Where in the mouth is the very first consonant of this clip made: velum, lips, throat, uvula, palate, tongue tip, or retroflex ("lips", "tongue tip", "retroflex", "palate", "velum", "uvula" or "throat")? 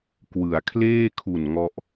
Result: velum